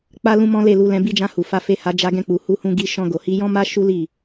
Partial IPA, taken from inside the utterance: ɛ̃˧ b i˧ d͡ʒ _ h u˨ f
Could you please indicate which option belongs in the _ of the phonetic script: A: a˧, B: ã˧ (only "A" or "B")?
B